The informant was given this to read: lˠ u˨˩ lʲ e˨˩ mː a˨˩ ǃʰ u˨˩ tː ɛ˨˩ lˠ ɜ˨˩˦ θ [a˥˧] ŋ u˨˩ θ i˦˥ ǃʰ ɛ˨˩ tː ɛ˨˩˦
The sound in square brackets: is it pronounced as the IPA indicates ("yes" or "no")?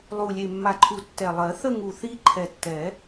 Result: no